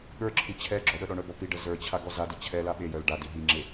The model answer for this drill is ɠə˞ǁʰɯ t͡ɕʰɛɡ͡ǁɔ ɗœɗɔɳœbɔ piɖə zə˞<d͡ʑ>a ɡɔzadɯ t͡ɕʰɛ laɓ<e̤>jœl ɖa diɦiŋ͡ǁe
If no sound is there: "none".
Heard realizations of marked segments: t͡ɕʰ, e

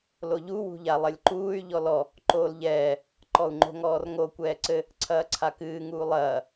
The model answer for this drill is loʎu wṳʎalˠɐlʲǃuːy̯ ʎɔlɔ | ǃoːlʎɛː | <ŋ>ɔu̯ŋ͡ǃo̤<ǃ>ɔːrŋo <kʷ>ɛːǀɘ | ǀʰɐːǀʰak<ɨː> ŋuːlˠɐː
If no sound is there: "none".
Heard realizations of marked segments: ǃ, ŋ, kʷ, ɨː

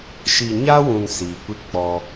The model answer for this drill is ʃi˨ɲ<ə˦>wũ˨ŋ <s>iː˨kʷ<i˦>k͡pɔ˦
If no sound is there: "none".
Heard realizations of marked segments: a˦, s, i˦

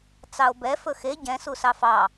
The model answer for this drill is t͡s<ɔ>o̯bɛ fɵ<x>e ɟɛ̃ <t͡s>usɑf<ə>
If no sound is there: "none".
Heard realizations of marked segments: ɑ, x, s, ɑ

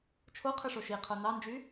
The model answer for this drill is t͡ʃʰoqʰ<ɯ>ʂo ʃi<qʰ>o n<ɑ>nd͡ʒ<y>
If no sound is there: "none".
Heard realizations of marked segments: ɯ, qʰ, ɑ, y

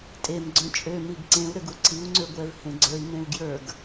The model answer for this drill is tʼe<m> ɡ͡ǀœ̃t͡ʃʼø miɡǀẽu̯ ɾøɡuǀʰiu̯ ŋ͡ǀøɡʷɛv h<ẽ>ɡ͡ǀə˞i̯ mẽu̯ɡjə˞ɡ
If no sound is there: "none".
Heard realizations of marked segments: m, ẽ

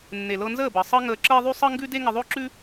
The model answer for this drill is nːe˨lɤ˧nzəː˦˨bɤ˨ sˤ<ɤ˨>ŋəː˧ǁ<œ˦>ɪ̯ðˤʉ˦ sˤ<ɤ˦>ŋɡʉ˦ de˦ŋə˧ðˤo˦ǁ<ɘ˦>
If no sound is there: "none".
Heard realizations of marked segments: ɤ˦, ə˦, ɤ˦, ʉ˦

